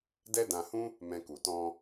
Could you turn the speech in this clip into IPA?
d ɛ˦ d ã˧ h ũ˦ | m ɛ̃˧ k u˨ t ɔ̃˧

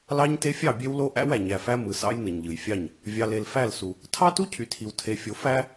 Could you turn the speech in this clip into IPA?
l ɑ˦ ɲ t e˦ fʲ ɑ˦˨ bʲ e˦ w l o˦ ʔ æ̰˦ w æ˨ ɲ æ˨ f æ˦ m ɯ˨ s ɑ̰˦ j n ɯ˨ ɲ ʎ ɯ˨ j fʲ ɑ˦˨ ɲ | vʲ ɑ˨ l e˨ l f æ˦˨ l s u˨ | tʰ ɑ˦ t u˦ cʰ y˨ tʰ i˨ w tʰ e˨ fʲ o˨ f æ˦

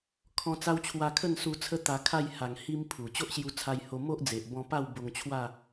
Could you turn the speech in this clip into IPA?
kʰ ɔ̃˧ t͡s a˦ w t͡ɕʰ w a˧ kʰ ə˥˧ n s u˧ t͡sʰ ə˦ t̪ a˧ kʰ a˥˧ j h a˨˩ ŋ h i˧ m pʰ u˨˩ t͡ɕ o˦ ʔ ɕ j u˧ t͡sʰ a˧ j h o˧ m o˦ ʔ d͡z e˨ ʔ b ɔ̃˧ p a˥˧ w b o˧ ŋ t͡ɕʰ w a˥˧

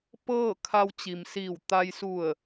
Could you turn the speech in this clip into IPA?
p ɤː˥˨ kʰ a˧ w t͡ɕ i˩ m s iː˧˩ w t̪ a˧ j s u˧˩ ə̯

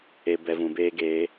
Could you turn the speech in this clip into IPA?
e˨ b ɛ˨ v ũ˨ b eː˦ ɡ eː˨˦

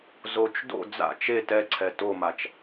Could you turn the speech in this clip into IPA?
z o t͡ʃ d o̰ d͡z a̰ t͡ʃ e t ɛ ǀʰ ɛ t o m a t͡ʃ

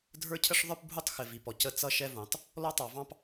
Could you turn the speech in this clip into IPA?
dʱ ə˞˦ cʰ ə˦ ʂ ðˤ ə˞˦ p bʱ u˦ tˤ x ɪ˨ v i˨ p ɔ˨ c ə˦ t͡s ʌ˦ ʃ ɛ˦ v ũ˨ tˤ | l ɔ˦ tˤ ɑ˨ v ɑ̃˦ p

